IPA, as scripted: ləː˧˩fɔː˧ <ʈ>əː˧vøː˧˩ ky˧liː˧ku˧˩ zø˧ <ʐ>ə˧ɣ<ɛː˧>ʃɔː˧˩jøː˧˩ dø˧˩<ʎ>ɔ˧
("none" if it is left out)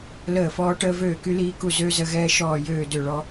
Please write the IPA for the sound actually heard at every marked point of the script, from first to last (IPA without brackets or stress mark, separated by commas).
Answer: ʈ, z, ɛː˧, ɭ